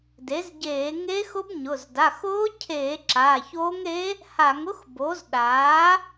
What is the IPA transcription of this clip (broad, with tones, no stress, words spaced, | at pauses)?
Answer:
de˩˥zɟeː˧˩˧ŋe˧˥xʊ˧˥b ɲʊ˩˧˩z da˩˧˩xʊː˧˥cʰeː˧˩˧ ǁaː˩˧˩çoː˧˥ŋɾe˧˥ | ha˧˩˧ŋʊ˧˥x bo˩˥zɗaː˩˥